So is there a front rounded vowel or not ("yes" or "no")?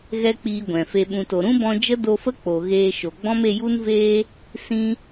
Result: no